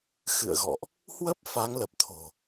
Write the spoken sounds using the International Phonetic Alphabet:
xɨ̰˧˨ə̯ɣɔ̰˧˨ʔ | hwə˦˥p̚ fa˨˦ŋlə˨˩p̚t̪ʰo̤˨˩

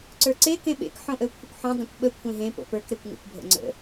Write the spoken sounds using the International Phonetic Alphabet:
ǀə˞ǀe kẽɓḛk ħõʔəʊ̯kʷʰəkʷħõ dˤə̃kʷɓə kʷʰẽɦẽ po̰pə˞k ɾekʷŋə̰kʷ bʱə̰ŋ͡ǀə̰

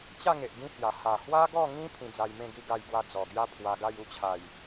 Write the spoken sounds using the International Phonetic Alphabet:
t͡ɕa˥˧ŋe˨ʔ ɡĩ˦hja˨˩ ha˨˩hwa˦ɡɔ˥˧ŋĩ˦ pʰĩ˧d͡za˧jmẽ˥˧ɡi˥˧ ɡa˥˧jɡwa˦ d͡zɔ˨˩ɡja˦ pʰwa˧ɡa˥˧j u˥˧t͡ɕʰa˨˩j

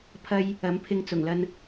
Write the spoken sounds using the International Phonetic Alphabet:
pʰɐ˥j | ɐ˨˥mpʰɪ˧ŋt͡sʊ˨˩ŋlɐ˧n

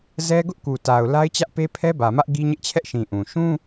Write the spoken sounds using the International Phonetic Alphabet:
zɛ˦ɡʊ˦ʔku˨ta˨ʊ̯ la˦ɪ̯t͡ɕä˦ʔ pe˦pʰɛ˦bä˨mä˦ʔ ɡi˦ɲɪ˦ʔt͡ɕʰɛ˦ʔʃĩ˨ ʔũ˨ ʃũ˦

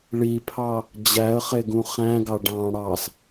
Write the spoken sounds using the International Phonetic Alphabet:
ɭipʰɑ | d͡ʑæə̯χeɡũ χæ̃ɡɑ ɖɑ̃ ɽɑs

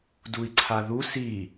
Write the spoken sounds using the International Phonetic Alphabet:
dui̯ǀʰaðu si

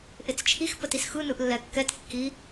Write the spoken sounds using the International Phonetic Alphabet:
ʔɪt͡st͡ʃʰix pətisxɯnɯʔ lːɛkːɛt kːi

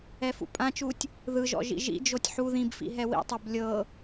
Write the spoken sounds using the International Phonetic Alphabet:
ɛfṵpʼãt͡ʃutʲ | ðɯʒɔ̰ ʒḭʒḭd͡ʒotʲ ħu ðĩbfḭ ɦɛwḭtˤob lʲɤ

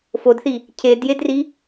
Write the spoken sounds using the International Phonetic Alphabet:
fodθi | cʰedjedri

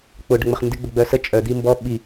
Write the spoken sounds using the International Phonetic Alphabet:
k͡pʊ ɖəŋ͡məχndɪ ɡ͡bəɡ͡bœsə t͡ʃʼœ d̪imbɔ ɓi

